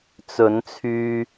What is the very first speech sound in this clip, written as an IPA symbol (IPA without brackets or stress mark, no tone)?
t͡s